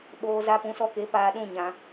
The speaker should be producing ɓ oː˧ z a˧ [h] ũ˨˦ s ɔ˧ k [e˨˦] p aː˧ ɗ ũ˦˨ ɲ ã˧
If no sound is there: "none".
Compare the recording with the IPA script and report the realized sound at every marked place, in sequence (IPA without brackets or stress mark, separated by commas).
p, e˨˦